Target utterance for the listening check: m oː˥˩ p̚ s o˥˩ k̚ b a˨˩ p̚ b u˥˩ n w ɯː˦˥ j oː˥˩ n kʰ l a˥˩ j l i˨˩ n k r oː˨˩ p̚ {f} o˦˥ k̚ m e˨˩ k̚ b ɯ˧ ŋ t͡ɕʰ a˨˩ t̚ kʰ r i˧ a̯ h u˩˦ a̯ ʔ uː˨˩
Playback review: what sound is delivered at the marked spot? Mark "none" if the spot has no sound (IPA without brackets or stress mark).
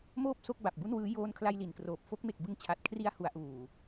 f